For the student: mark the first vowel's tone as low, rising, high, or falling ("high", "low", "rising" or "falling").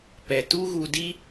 low